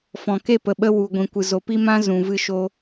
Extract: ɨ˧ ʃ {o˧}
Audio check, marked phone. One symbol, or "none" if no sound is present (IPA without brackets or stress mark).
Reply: o˧